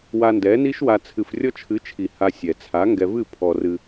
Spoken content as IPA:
wa˧ndɛ˨˦ni˦ʃwa˧ t͡sʰɨ˧frʲɔ˦ t͡ʃʰɨ˨˦t͡ʃʰi˨ ha˧sʲɛ˨ t͡sʰa˨˦ŋɡɛ˧vɨ˦˨ pʰɔ˧rɨ˧

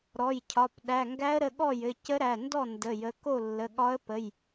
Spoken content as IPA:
ɾɔ˩˧˩jcʰɒ˩˧˩p ɗæ˩˧˩ŋɡæ˧˥ə̯ɾə˩˧˩ɠɔ˥˩ jɘ˩˧˩cə˧˥ɾæ˩˧˩ndɔ˥˩ ndə˩˧˩ jə˩˧˩ko˥˩lːə˩˧˩ ɠɒ˧˥ə̯pə˩˧˩j

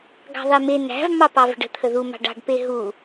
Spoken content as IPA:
ɡɑ̤ðˤeme næ̤v mɑpɑvə̤ɖə̤ t̪ʰəðu mɑ̤ɖɑ̤ɖ peɦu

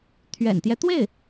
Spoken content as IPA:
t̪ʰɥɛ̰˨˩nt̪jɛ˦t̪we˥˩ɪ̯

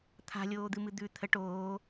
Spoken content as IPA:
t̪ʰa̤ lʲoːd̪ɨmɨd̪ʉ t̪ʰə ʈoː

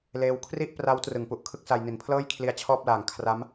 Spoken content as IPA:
leː˧wkʰri˥˩ʔpra˦˥w trɯ˩˦ŋpu˨˩ʔkʰɯ˥˩k̚sa˧j ni˨˩npʰlɤː˥˩jkʰli˧a̯ t͡ɕʰɔː˥˩p̚laː˨˩ŋ kʰra˦˥m

